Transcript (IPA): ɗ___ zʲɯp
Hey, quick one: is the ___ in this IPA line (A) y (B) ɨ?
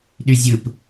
A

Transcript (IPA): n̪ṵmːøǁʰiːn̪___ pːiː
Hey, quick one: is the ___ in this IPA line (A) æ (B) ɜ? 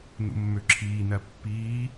B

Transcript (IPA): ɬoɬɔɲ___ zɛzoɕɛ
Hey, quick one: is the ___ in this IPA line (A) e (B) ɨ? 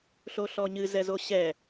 B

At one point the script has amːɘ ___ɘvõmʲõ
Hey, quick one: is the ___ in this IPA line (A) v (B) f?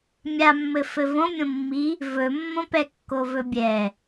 B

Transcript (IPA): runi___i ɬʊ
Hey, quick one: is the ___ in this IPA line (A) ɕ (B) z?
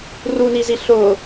B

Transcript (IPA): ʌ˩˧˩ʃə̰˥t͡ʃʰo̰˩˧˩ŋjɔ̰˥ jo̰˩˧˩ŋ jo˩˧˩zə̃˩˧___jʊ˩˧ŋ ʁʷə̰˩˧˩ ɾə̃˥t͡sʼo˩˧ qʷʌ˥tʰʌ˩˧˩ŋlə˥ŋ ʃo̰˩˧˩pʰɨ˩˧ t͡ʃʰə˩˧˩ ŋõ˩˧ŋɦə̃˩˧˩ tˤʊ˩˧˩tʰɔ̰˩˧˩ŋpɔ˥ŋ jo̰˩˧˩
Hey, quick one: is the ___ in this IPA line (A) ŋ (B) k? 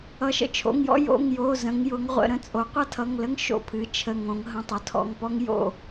A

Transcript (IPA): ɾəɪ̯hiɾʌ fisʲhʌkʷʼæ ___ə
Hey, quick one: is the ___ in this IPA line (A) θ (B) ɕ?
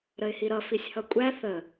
A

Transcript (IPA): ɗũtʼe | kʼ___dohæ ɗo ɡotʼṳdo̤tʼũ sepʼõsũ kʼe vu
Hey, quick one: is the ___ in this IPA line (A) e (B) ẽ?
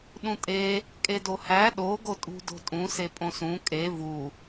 A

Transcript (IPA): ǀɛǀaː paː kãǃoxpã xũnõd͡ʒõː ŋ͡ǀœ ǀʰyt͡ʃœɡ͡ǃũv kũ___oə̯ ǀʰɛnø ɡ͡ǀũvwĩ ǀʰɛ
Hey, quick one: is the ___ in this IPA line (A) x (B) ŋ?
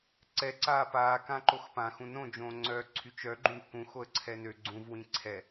A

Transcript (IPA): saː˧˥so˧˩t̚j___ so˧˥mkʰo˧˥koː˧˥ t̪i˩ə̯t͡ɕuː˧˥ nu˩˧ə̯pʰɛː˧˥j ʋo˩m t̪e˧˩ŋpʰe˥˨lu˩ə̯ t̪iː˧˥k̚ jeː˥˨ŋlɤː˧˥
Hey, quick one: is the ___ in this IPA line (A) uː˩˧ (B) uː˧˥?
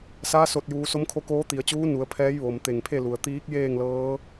A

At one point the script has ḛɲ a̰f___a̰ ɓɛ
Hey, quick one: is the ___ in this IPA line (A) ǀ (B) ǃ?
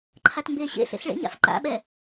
B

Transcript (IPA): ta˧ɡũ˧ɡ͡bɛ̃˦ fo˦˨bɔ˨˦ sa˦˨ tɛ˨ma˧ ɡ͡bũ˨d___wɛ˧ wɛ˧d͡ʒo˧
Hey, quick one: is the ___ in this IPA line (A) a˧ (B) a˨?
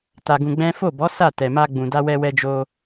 A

